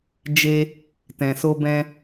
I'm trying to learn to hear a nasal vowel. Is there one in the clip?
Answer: yes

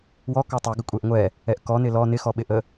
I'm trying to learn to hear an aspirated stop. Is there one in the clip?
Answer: no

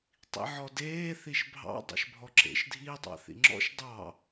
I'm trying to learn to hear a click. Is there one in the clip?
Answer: yes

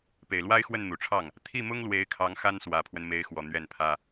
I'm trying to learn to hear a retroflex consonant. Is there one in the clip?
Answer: yes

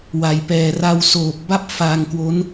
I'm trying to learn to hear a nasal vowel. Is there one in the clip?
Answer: no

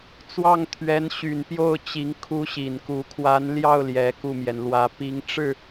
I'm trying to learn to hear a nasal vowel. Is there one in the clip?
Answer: no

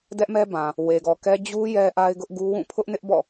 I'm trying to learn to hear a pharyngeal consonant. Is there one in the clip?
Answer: no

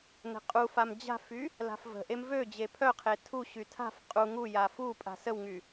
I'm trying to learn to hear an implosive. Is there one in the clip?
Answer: no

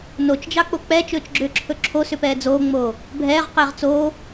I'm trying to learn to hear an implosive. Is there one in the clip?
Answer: no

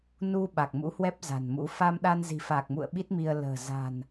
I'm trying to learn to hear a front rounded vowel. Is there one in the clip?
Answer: no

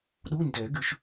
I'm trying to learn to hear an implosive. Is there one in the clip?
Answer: yes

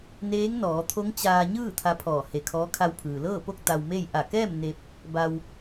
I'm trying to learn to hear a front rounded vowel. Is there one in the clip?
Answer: no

